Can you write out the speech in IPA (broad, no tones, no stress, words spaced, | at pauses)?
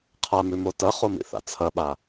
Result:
qʰamʉmo tɐχomḭθa̰ t͡sʰɐɓa